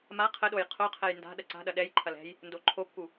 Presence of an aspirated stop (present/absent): present